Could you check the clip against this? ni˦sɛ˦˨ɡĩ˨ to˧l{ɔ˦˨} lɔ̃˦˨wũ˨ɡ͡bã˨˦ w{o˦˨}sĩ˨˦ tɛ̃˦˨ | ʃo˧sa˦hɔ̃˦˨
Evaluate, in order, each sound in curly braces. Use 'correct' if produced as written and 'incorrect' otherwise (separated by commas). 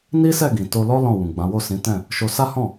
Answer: incorrect, correct